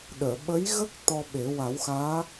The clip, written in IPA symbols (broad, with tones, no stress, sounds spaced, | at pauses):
ɗ əː˨˩˨ ɓ ə˧˥ j ɣ ə˦˥ k̚ t̪ ɔ˧ ɓ e˨˩˦ w a˨˩˦ w x aː˧˥